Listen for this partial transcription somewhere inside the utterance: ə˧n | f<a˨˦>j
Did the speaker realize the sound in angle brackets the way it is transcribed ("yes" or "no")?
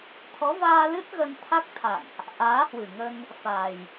no